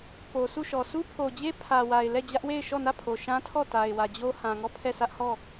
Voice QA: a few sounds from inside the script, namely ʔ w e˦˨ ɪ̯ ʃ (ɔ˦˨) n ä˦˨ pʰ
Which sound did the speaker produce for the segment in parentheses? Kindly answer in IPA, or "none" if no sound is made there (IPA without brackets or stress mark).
ɔ˦˨